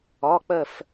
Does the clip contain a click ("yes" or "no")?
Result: no